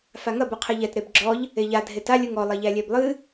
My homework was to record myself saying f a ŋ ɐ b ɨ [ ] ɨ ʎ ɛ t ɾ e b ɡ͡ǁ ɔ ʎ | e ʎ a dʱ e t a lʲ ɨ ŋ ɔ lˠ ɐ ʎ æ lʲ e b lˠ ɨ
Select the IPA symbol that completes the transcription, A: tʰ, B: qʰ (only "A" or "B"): B